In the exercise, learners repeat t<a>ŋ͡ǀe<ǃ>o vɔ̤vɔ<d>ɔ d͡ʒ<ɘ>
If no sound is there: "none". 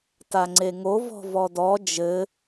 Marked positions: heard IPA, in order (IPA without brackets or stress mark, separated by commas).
a, ŋ, d, ɘ